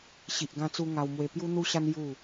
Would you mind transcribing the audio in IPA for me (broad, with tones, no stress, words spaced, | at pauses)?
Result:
ɕi˨ʔɡã˧t͡su˧ ŋa˧w mwe˧pju˦ n̪u˦ɕa˦n ju˥˧